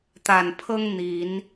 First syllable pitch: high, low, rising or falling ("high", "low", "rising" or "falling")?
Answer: low